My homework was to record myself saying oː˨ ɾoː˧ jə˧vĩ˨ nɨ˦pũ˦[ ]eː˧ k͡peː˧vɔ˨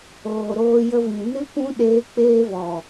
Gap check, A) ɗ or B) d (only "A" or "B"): A